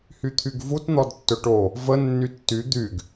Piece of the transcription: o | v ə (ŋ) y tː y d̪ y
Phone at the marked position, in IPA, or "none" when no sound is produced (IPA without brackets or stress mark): nː